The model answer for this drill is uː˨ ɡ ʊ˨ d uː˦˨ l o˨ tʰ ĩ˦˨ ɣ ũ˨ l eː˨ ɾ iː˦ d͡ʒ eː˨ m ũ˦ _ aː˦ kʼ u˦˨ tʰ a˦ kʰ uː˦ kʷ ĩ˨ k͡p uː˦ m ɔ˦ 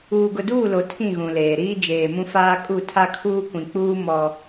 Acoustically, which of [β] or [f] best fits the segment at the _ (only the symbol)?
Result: f